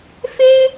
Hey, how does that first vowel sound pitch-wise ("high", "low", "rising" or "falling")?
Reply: high